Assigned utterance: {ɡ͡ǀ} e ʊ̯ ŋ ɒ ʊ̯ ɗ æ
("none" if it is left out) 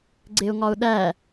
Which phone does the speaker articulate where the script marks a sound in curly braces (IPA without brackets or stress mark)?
ɡ͡ǀ